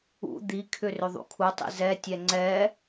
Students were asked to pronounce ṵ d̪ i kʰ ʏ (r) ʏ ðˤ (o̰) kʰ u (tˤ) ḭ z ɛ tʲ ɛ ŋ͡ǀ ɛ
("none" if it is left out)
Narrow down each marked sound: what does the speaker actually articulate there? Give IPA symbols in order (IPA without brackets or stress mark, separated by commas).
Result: r, ṵ, tˤ